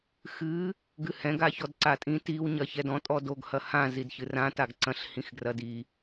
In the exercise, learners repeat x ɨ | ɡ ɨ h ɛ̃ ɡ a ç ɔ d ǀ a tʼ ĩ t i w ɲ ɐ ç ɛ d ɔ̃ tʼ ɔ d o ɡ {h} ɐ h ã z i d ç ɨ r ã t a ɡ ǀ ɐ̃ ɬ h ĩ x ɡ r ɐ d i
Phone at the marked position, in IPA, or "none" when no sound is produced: h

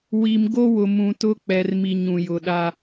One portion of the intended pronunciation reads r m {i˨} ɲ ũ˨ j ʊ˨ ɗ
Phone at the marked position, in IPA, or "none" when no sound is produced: i˨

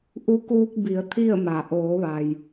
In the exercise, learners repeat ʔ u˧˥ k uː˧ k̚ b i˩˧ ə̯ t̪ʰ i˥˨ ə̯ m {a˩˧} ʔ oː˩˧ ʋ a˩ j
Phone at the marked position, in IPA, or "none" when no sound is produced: a˩˧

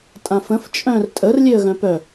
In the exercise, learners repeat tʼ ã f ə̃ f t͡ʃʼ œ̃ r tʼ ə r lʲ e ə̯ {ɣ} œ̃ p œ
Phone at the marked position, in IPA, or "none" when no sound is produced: ɣ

